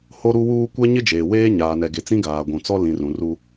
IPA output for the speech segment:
ho˦ɾu˦wuː˦ kʷɛ˦ɲɪ˦d͡ʒeː˨ weː˦ɲaː˨nɛ˨ ɡe˨t͡sĩ˦ɡaː˨ ɡʷũ˨ t͡sɔ˦ lĩ˨rũ˨ru˦

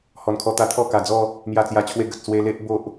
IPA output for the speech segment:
hɔ˨˩nkʰɔ˧t̪a˧ t̪ʰɔ˥˧ka˨˩d͡zɔ˥˧ | mja˨˩t͡sja˨˩t͡ɕʰwe˧ ɡə˨t̚ swe˧le˦ʔ bo˦ʔ

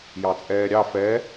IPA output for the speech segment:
jɑt͡sʼɛːɾʲɑ fɛ

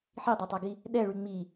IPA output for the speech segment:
ħidˤatˤaɡi | ɗɛɭy ŋ͡mi

